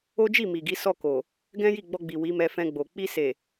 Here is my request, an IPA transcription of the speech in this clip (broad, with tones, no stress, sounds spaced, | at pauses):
o˦ d͡ʒ i˦˨ m i˨ ɡ i˨˦ s ɔ˦˨ k o˨ | ɡ ɛ̃˦ j i˦˨ ɡ͡b ɔ˧ ɡ͡b i˨ w i˨˦ m ɛ˧ f ɛ̃˧ ɡ͡b o˨ k͡p i˧ s e˨